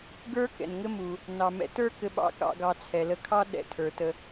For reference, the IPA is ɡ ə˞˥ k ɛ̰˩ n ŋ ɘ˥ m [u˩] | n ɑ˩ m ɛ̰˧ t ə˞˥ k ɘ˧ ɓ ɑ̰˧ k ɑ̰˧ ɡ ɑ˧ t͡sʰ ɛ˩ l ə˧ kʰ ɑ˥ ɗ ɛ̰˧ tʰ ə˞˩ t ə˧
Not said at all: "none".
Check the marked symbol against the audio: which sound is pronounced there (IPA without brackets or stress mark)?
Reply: u˩